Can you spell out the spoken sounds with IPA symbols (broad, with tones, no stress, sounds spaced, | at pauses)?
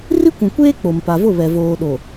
r i˦ kʷ ũ˨ kʷ eː˦ k͡p o˨ m p a˨ v ʊ˦˨ β ɛ˨ v oː˨ ɗ o˨